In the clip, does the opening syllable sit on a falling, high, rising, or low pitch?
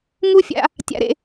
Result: high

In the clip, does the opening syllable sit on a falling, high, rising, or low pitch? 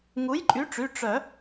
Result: rising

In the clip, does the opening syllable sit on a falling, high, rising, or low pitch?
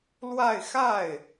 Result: falling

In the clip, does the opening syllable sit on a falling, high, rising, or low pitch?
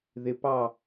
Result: rising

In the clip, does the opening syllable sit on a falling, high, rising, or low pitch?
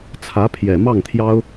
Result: rising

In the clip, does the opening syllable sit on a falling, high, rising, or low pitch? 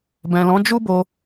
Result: low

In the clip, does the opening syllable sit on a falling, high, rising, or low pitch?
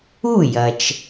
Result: falling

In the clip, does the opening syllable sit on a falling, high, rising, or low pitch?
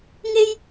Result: high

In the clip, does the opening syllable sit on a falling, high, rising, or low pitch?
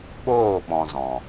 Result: falling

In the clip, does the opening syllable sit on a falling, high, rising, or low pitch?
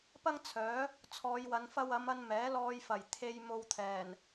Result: high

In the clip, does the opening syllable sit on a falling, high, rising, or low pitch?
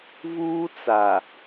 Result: high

